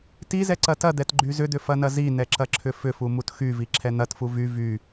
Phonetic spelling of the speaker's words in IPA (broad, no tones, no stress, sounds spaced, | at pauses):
t i z ɛ ǀ ɐ t ɐ d̪ ɛ t ɡ͡ǃ y z ʏ d̪ ʏ f ɐ n ɐ z i n ɛ ǁ ɐ ǁʰ ʏ f ʏ f u m u t x y v i ǁʰ ɛ n̪ ɐ t f u v y v y